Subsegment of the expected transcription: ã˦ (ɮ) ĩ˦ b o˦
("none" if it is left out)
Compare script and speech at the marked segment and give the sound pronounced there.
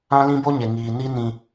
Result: l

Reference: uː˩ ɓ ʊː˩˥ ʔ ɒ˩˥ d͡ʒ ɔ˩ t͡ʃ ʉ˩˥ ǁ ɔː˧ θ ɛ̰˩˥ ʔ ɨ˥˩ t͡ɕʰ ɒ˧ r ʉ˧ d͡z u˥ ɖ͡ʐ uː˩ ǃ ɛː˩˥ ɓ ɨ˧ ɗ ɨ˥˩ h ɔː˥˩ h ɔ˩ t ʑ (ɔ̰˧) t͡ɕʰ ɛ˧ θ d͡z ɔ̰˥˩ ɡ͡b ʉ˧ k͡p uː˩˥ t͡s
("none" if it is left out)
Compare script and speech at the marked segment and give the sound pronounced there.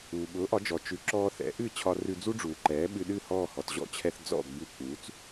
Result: ɔ̰˥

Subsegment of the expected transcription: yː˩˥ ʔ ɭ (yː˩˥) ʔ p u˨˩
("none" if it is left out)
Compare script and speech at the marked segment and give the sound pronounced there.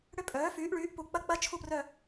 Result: yː˩˥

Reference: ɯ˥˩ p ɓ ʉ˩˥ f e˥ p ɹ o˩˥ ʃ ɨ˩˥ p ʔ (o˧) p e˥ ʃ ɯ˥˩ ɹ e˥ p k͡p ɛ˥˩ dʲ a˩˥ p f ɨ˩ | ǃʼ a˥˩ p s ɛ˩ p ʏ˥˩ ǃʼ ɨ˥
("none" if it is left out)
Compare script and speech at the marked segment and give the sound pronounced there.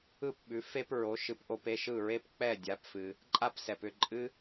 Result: o˧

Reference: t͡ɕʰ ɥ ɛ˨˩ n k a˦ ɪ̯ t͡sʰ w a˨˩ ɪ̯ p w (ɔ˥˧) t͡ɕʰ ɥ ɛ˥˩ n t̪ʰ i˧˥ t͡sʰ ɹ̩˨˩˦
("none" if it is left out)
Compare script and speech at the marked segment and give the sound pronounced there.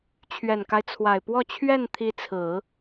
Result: ɔ˥˧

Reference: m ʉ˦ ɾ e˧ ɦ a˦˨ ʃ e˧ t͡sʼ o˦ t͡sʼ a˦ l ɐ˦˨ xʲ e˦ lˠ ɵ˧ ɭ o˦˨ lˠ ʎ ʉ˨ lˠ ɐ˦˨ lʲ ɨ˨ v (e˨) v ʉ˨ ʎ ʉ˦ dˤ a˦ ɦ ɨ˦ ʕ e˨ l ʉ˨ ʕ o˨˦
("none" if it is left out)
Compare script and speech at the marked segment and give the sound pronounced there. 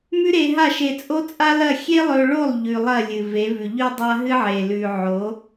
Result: e˨˦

